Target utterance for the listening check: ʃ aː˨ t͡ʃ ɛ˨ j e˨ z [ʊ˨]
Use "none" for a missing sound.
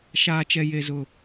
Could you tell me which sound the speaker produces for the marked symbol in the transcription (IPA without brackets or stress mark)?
ʊ˨